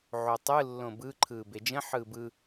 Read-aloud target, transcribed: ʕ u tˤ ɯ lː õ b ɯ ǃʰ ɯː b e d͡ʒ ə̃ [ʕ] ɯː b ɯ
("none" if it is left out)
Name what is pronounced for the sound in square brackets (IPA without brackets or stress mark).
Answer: ħ